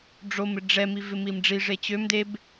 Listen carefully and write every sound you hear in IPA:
ɖ͡ʐ o m ɪ ɖ͡ʐ ɛ m i v ɪ m i m ɖ͡ʐ i ʐ e t͡ɕ ø m d e b

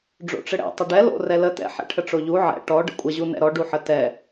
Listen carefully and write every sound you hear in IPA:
ɖ͡ʐ o̰ ʈ͡ʂ ɘ ɽ ɛ̰ tˤ ɘ ɖ ɛ l o̰ r ɛ l ə t ɛ̰ ħ ɛ̰ ʈʰ ə ʈ͡ʂ o ʎ u ʕ ɛ̰ ʈ ɔ ɖ ə̰ kʷʼ ə ʑ u n ɛ̰ ɾ ɔ ɖ u ħ ə t ɛ

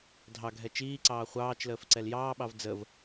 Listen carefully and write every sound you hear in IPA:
dʱ ɑ ɡʱ ɛ t͡ʃ iː ǀ ɑː χʷ ɑː t͡ʃ l əː f ǀ ɛ l j ɑː ɓ ɑ v d͡z ə v

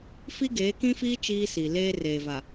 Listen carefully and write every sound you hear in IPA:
f i˦ ɡ eː˨˦ k ĩ˦ f iː˦ t͡ʃ iː˦ s i˨ l eː˦ r eː˨ v a˨

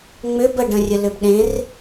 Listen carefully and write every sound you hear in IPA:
ŋ͡m ʏ b ə ɖ ə̃ rʲ ə l ʏ b ɗ ẽ r

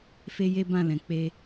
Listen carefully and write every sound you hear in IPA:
f e˦ j e˦ b ã˦˨ l ɛ̃˨ k͡p e˧

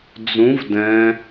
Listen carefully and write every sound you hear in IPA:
d͡z ũ v d ɛ̃

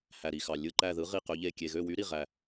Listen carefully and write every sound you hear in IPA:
h æ˨ ɾ i˨ x ɑ˨ lʲ ɯ˦˨ ǃ æ˦˨ ð ɯ˧˥ ʁ i˦˨ q ø˧˥ ʎ e˦˨ kʲ e˨ ɣ ø˦˨ w y˧˥ ɾ i˦˨ ʁ æ˦˨

